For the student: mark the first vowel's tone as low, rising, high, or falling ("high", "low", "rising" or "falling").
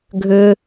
low